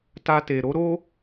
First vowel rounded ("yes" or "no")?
no